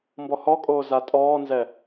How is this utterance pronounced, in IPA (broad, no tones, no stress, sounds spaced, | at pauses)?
m b ɔ h ɔ kʼ oː z a tʼ ɔː n z ɛ